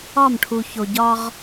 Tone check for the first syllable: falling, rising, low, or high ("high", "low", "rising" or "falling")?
falling